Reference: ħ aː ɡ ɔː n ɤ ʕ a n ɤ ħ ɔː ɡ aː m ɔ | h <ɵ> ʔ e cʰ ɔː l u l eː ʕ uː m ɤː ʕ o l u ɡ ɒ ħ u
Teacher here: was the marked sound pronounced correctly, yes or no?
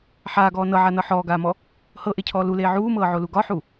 no